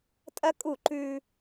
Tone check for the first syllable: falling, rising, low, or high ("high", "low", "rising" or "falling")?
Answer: high